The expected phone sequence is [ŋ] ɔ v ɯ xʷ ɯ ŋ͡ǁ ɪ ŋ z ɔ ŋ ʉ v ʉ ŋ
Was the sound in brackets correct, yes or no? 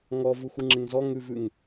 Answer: yes